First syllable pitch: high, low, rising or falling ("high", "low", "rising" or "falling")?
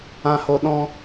low